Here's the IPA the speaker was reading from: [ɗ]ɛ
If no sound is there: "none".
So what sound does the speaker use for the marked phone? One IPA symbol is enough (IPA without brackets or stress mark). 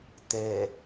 t̪